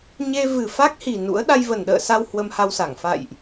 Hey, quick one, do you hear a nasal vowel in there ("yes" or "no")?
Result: no